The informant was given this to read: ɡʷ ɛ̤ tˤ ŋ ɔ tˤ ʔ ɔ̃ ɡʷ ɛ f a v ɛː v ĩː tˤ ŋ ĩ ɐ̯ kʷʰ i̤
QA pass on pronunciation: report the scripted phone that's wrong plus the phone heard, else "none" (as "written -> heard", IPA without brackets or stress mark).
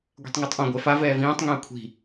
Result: none